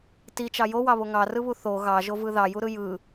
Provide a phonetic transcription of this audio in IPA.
t i t͡ʃ ɑ j o w ɑ β o ŋ ɑ r ɯ β u θ o ɣ ɑ ʒ o v ɯ ð ɑ j u ɾ ɯ j ɯ

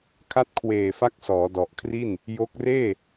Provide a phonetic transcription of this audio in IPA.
kʰ a˦˥ t̚ kʰ w eː˨˩ f a˦˥ k̚ s ɔː˩˦ d ɔ˨˩ ʔ kʰ r i˥˩ n | j o˦˥ k̚ r eː˥˩

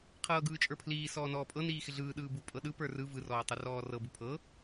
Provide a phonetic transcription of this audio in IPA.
qʰ ɤː ɡ ɯː t͡ʃʼ ə˞ pʰ l iː s ɔː n ɔː pʼ ɤ n iː x ɪ ɮ ɯː ɗ ɯː b u pʼ ɤ ɗ ɯ p ə˞ r ɯ v ɯ r ɔː tˤ u r ɔː r ɤ b u pʰ ɤ

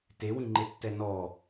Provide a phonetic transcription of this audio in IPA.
t e w ĩ ŋ͡ǃ e tː ɛ n ɔ

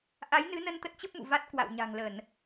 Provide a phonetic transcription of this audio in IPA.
ʔ a˨˦ j n ɨ˨˦ n ə˧ n t̪ ə˦˥ t̚ t͡ɕ ə˦˥ p̚ m ṵ˧˨ v a˦˥ t̚ k w a̰˧˨ w ɲ a̤˨˩ ŋ l ə˧˩˨ n

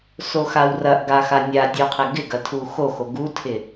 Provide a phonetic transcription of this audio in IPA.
s o x a w r ɐ ʔ ɡ a x a nʲ a dʲ o qʰ ɪ ɡ ɪ ɡ ɐ tʰ u x o x o ɡ u tʰ ɪ

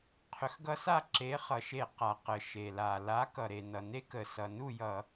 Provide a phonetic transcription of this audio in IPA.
qʰ ʏ˨˥ x ɡ ʌ˦˥ s a˥˨ ǁ e˨˥ χ ʌ˩ ʃ e˧˩˧ q a˩ q ə˩ ʃ e˩ l a˩ l a˨˥ k ʌ˩ ɾ e˩ n ʌ˩ n e˦˥ k ə˩ s ʌ˩ n u˥˨ j ʌ˧˩˧

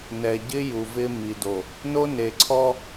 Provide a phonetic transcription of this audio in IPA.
n ɛ˨ ɟ ɪ˦ j u˨ v ɪ˦ m i˨ d o˨ | n o˦ n e˨ ǀʰ ɔ˦

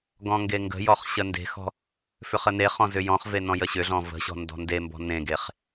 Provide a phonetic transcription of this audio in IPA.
ɡ ɔ̃ ŋ ɡ e ŋ ɡ ə̤ j ɔ χ ɕ ə n d e̤ x ɔ̤ | f ʏ χ ə n e χ ɔ̃ z ʏ j ɔ̃ χ v e n ɔ̃ j ə ɕ ʏ ɮ ɔ̃ v ə̤ ɕ ɔ̤ n d ɔ̤ n d e m b ɔ̤ n ẽ ɡ e χ

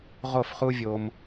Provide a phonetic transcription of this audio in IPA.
ʁ o˥˩ f χ u˥ vʲ o˧ m

